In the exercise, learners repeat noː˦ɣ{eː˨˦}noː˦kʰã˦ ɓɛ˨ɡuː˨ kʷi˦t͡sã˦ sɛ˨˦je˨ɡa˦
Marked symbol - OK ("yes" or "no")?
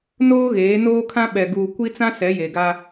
yes